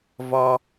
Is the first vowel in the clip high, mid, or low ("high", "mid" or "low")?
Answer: low